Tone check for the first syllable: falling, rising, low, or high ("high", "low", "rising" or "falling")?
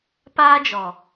high